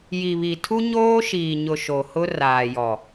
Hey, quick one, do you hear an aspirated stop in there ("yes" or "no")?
yes